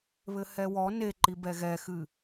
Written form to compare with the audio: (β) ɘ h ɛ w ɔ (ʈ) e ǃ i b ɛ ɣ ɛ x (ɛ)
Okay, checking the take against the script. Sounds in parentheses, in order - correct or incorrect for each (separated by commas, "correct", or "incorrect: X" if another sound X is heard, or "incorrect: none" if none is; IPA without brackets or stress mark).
correct, incorrect: n, incorrect: ɨ